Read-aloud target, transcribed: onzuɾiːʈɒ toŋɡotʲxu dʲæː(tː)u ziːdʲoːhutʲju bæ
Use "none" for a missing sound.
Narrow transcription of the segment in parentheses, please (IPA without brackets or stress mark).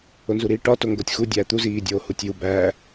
t̪